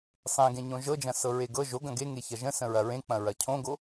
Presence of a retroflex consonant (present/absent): absent